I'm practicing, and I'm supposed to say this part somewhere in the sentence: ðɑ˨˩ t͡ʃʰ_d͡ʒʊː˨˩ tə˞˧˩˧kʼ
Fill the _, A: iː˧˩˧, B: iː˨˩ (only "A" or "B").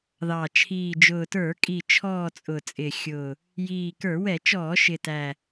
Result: B